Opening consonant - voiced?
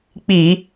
no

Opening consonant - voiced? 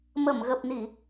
yes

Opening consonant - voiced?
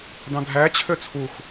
yes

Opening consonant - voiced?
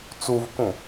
no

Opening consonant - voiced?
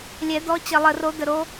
yes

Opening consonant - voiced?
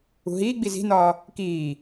yes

